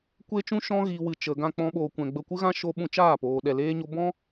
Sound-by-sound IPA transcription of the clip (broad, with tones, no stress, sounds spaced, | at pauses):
kʷ e˦ t͡ʃ ũ˦ ʃ ɔ̃˦ ɣ iː˨ w ɨ˨ t͡ʃ ə˨ ɡ ã˧ k͡p ɔ̃˦ ɓ oː˧ kʷ ɛ̃˧ ɡ͡b ə˧ kʷ ɨ˦ ɣ ã˦ ʃ o˦ ɓ ũ˧ t͡ʃ aː˦˨ p oː˨ ɗ ɛ˧ l eː˦ ɲ o˦ b ɔ̃˦